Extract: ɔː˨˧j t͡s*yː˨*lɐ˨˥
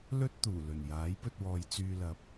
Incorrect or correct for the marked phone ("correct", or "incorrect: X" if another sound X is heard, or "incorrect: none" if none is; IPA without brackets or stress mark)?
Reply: correct